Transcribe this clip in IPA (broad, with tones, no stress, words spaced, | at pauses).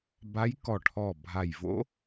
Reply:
ba˧˥jkɔ˧˩ʈʰɔ˧˩ bʱa˧˩jvo̰˥